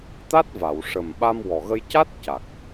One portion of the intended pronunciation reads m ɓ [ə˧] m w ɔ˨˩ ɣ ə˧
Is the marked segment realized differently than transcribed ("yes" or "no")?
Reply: yes